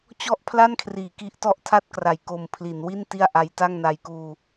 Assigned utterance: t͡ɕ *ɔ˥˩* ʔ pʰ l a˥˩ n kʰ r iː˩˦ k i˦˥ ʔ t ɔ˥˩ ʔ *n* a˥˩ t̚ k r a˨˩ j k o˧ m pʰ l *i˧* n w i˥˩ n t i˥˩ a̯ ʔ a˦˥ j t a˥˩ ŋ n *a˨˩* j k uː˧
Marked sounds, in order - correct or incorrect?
correct, incorrect: tʰ, incorrect: i˩˦, incorrect: a˧

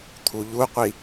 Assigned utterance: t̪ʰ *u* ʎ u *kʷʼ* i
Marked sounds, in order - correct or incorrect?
correct, incorrect: qʷ

